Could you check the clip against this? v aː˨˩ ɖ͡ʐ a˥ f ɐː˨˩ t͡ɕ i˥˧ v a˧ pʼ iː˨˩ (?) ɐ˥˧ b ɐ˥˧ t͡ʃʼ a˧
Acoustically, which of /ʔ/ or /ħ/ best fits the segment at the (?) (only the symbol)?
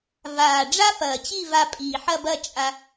ħ